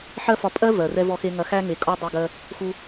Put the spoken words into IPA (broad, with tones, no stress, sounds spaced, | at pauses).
ħ ɜ˦ f ɒ˧ pʼ ɜ˦ v ɜ˨ r ɛ˧ v ɔ˧ x e˧ ŋ ɐ˧ x æ˧ ŋ e˨ kʼ ɒ˧ dˤ e˧ ɡ ɜ˧ | x u˧